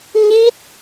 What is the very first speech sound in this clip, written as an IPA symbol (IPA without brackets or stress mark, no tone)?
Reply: ɲ